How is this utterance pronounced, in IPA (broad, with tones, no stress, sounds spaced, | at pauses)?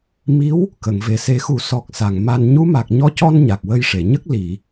m i˧˥ w | k ə˨˩˨ ŋ v e˨˩ s e˨˩˦ x u˨˩˦ s ɔ˨˩ k̚ s a˨˩ ŋ m a˧ n ɲ u˧˥ m a˨˩ k̚ ɲ ɔ˧˥ c ɔ˧ n ɲ a˨˩ k̚ w ə˧ j ʂ e˨˩˨ ɲ ə˦˥ k̚ l i˨˩˨